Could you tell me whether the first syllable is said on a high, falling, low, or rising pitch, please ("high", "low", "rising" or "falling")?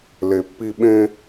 low